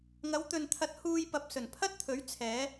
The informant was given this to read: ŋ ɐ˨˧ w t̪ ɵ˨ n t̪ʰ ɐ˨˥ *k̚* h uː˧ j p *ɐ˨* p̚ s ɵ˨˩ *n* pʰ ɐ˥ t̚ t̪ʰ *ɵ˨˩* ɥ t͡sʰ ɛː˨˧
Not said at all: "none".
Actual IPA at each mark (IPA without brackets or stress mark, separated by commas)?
t̚, ɐ˨, n, ɵ˨˥